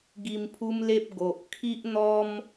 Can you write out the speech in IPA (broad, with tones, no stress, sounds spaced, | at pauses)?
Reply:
ɡ i˧ m pʰ u˦ m l e˦ p̚ ɡ o˨ ʔ kʰ i˦ ʔ n̪ ɔ˦ m